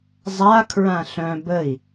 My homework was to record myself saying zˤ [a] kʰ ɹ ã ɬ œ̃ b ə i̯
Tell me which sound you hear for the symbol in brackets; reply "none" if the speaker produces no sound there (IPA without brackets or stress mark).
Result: a